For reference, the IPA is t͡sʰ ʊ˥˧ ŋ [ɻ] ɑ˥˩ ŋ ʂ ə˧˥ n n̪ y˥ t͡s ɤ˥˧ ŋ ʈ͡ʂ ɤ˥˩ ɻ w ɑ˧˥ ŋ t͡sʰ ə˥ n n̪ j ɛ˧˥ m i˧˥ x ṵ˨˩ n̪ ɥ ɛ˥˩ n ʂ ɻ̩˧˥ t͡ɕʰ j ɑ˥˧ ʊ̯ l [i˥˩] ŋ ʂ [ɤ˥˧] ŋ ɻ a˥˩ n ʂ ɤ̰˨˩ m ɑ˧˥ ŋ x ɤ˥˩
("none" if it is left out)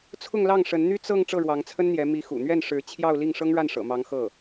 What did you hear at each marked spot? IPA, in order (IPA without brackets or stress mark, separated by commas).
l, i˥˩, ɤ˥